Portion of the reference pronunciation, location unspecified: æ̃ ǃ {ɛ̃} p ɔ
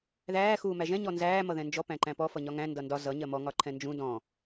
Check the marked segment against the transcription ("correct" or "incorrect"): incorrect